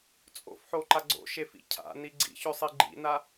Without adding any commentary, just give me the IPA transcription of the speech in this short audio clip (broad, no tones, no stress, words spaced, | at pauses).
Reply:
t͡sʼo̰fħoǃa ɡ͡ǀo̰ʃefḭ cʰa̰ni ɡ͡ǀḭçɵsˤi ɡ͡ǃḭna